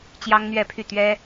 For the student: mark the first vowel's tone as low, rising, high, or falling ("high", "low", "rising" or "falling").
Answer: high